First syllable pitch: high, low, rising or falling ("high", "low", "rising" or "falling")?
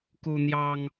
high